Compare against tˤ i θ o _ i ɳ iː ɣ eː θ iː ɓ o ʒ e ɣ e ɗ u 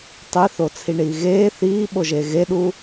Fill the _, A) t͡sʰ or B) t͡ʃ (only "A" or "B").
A